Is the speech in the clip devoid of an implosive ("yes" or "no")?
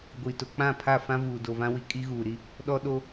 no